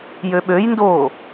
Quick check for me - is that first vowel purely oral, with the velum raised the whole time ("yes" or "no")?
yes